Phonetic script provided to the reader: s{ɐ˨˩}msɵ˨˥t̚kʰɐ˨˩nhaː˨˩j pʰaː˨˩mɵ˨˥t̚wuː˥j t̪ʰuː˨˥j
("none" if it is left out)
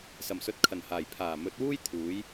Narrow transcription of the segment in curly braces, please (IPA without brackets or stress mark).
ɐ˨˩